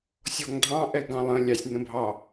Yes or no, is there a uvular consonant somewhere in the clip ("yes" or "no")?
no